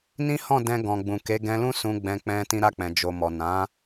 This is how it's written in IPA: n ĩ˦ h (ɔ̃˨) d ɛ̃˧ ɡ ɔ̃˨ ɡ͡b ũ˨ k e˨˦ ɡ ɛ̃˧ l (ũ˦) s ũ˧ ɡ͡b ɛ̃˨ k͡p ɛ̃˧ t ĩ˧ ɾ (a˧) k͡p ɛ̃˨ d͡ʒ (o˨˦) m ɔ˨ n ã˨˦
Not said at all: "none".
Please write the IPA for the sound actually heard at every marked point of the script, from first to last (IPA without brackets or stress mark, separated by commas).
ɔ̃˦˨, ũ˦, a˧, o˨